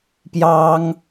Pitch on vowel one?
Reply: high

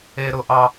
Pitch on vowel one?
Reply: high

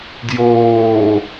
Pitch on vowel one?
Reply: low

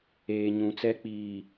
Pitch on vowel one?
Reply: low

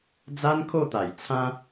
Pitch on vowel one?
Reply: high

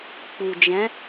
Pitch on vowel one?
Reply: low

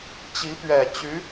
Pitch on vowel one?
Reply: rising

